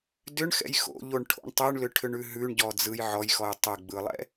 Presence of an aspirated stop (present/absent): present